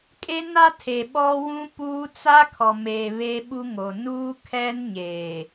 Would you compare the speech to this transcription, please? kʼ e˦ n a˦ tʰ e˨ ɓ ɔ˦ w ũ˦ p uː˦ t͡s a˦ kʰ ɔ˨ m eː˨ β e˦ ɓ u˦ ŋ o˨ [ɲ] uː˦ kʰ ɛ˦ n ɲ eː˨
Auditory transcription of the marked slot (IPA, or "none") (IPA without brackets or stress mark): n